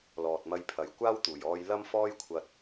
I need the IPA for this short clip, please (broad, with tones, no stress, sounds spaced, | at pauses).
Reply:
l ɔː˨ t̚ m ɐ˧ j pʰ ɐ˨ j kʷ aː˥ w t̪ uː˨˩ j ɔː˧ j l ɐ˥ m f ɔː˥ j kʷʰ ɐ˧ t̚